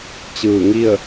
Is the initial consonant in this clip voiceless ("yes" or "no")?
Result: yes